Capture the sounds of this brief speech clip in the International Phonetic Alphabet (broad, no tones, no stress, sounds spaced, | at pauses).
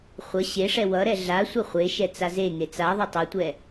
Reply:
χʷ ʌ ɕ e ʂ ɛ w ʌ ɾ ɛ ɮ a sʷ ʌ χʷ e ʃ ɛ t͡s a z e ŋ e t͡s a ðˤ ʌ tˤ ʌ tʷ ɛ